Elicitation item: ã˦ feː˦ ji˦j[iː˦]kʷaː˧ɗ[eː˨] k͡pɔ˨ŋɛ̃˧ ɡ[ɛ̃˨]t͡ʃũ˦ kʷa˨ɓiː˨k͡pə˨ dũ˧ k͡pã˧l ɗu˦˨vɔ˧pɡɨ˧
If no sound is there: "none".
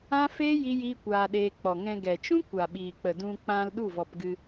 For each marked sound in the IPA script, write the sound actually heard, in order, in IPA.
iː˦, eː˧, ɛ˨

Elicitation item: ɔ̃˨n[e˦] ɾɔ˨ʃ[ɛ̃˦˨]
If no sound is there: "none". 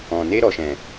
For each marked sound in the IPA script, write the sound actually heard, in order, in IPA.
e˦, ɛ̃˨

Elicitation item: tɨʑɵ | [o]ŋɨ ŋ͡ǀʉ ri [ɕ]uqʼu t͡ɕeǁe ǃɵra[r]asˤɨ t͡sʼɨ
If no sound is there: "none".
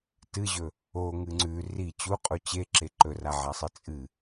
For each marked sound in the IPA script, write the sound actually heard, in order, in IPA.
o, t͡ɕ, ʕ

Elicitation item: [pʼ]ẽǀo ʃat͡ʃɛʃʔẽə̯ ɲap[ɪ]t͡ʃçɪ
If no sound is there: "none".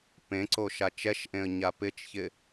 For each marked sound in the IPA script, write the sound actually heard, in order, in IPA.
p, ɪ

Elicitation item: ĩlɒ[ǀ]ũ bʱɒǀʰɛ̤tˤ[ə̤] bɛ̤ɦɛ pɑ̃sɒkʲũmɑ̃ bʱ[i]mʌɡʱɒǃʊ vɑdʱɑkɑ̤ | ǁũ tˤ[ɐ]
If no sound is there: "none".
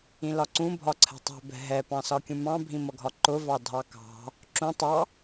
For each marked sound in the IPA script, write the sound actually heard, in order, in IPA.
ǀ, ɛ̤, ĩ, ɑ

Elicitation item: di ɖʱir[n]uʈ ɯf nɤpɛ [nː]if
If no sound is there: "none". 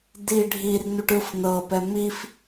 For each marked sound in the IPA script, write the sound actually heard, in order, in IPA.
n, m

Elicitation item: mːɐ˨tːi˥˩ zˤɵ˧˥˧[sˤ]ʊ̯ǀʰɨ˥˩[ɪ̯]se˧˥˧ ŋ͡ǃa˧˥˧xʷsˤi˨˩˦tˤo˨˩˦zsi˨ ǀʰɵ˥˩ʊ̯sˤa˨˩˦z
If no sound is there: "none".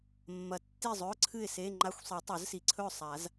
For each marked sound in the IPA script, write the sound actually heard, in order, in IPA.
none, ɪ̯

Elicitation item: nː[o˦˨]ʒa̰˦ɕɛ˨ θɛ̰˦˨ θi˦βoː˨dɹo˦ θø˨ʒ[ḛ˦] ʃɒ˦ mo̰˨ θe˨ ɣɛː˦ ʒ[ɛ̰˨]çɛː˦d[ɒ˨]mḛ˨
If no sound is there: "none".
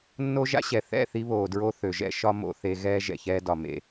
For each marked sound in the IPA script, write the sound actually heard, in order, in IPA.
o˦, ɛ̰˦, ɛ̰˨, ɒ˨

